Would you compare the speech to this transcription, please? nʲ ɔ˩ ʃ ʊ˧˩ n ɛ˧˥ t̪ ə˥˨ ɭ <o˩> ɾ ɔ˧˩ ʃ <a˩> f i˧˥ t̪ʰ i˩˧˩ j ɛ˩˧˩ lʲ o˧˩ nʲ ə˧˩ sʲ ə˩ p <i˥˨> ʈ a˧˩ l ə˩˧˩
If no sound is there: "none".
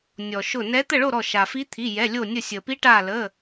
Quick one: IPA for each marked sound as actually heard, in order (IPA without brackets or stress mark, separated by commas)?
o˥˨, a˩, i˧˥